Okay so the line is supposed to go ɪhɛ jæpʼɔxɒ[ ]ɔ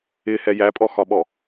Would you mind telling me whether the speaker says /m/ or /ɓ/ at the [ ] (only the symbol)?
ɓ